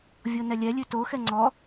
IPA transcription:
vʲonɛlʲɛlʲʉ toxɛ ŋ͡ǀɔ

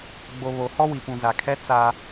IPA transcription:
ɡ͡bo˨βo˨ hɔ˦wi˨pũ˨ za˨kʰɛ˦ t͡sa˦

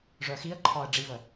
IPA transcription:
ʐœxiə̯ǃʰɒə̯ ɖ͡ʐivə

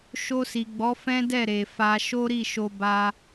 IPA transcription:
ʃo˧si˨ ɡ͡bɔ˨˦fɛ̃˦dɛ˦˨ ɾe˨fa˧ ʃo˦ɾi˦˨ʃo˧ ba˧

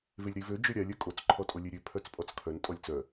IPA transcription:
velʲɾivø d͡ʒøɾʲalʲ œkʼot͡s ǃʰɔtʼolʲeɾʲø pʰœt͡spʼɔt͡skʰœn tʼɔlʲt͡sœ

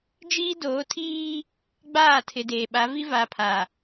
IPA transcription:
d͡ʒiː˦doː˨˦tʰiː˦ | ɡ͡baː˦˨tʰɪ˨deː˨ ɓa˨˦vi˦va˨pʰa˨

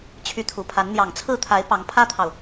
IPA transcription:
t͡ɕʰy˧˥t̪ʰu˨˩pʰa˧˥n n̪jɑ˨˩ŋt͡sʰɹ̩˥˩t̪ʰa˧˥ɪ̯ pɑ˧˥ŋpʰä˥t̪ʰɑ˨ʊ̯

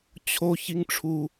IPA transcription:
t͡ɕʰo çiŋʈ͡ʂʰu

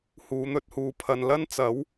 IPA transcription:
huː˨˧n̪ɵ˧t̚huː˨ pʰɐ˨nlɐ˥nt͡sɐ˨˥w

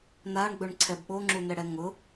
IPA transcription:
naɳɡ͡bɵɳǀʰɛb ɓoŋ͡ǁunɛɽɛ ŋʊ

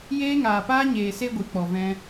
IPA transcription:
jeː˧ŋaː˨paː˧ɲeː˨ se˦ɡʷɨ˨˦k͡pɔ˨vɛ̃˧

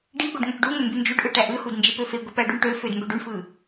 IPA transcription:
ɖi ɡʷeɖŋøʈɖuŋø mbynd͡ʒyɖʔɯ ʈæʔɯhud nd͡ʒepøfeɡʷi pæɖyɳʈøfød mbøɖyɳfɯ

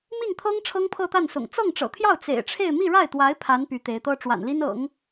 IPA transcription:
mi˥˩ŋt̪ʰɤ˥ŋ ʈ͡ʂʰɤ˥ŋpʰɤ˥˧t̪a˥˩nsʊ̰˨˩ŋ t͡sɤ˥˩ŋʈ͡ʂɤ̰˨˩t̪ʰjɑ˥˩ʊ̯ t͡sḛ˨˩ɪ̯ʈ͡ʂʰe˥˧ɪ̯ mi˥˧ɻa˥˩ɪ̯t̪wa˧˥ɪ̯ pʰa˧˥n py˧˥t̪e˧˥ɪ̯t̪ɤ˥ ʈ͡ʂwa̰˨˩nli˥n ɤ̰˨˩˦ŋ

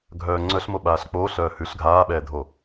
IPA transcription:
ɡʱœːŋ͡ǀœɬmo ɓaːɬk͡poːɬœː hʉɬ ɡʱaːɓɛːdʱo

